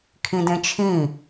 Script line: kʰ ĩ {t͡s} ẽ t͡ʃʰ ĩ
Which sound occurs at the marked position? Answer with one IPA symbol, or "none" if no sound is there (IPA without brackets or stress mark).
d